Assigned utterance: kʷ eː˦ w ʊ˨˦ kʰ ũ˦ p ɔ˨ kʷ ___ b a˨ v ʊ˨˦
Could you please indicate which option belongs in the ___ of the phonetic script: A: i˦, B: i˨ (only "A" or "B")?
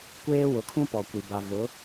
B